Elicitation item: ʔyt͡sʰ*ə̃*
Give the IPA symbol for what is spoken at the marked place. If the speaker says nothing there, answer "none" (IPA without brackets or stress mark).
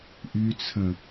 ə̃